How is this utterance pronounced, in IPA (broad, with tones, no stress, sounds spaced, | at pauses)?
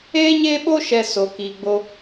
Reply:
eː˦ ɲ eː˦ ɓ o˦ ʃ ɛ˧ s o˧ k iː˧ ɡ͡b o˦